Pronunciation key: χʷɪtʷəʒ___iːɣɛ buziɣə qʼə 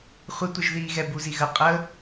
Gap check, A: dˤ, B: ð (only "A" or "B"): B